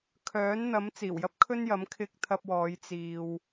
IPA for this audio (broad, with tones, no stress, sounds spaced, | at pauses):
kʰ œː˨˥ n n̪ ɐ˨˥ m t͡s iː˨˩ w j ɐ˥ p̚ kʰ ɵ˥ n j ɐ˨˥ m kʰ ɪ˧ k̚ t̪ʰ ɐ˧ p̚ w ɔː˨˧ j t͡s iː˧ w